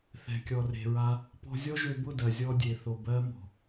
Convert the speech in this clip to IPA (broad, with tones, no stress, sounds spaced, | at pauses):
θ ɛ̤˨ kʲ ɔ˨ r e̤˨ ɹ a˧ | p ɔ̤˧ zʲ ɔ˦ ʒ ø˧ b ʊ˦˨ d ɜ˨ zʲ ɔ˧ dʲ e˨ θ o˨ b ɜ˧ m ɔ̤˨